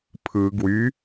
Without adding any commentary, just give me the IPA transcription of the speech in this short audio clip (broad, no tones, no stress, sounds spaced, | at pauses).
pʰ ɯ ɡ w y